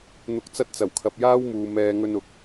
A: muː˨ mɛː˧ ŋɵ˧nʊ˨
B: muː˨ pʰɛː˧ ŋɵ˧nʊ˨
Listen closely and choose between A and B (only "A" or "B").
A